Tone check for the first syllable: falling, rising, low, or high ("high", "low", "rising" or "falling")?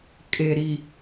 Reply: low